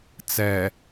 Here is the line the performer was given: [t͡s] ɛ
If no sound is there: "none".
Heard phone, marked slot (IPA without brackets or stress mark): t͡s